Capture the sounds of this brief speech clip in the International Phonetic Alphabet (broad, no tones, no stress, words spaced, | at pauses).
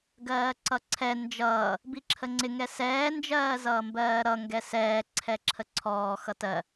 ɡɜːǀʌǀʰɛ nd͡ʒʌː | biǁʰəŋ͡ǀɪ ŋɛsɛː nd͡ʒɜːzʌːmbɜːɾʌ ŋɡɛsɛː ǀʰɛǁʰəǀʰɔː xʌtɜ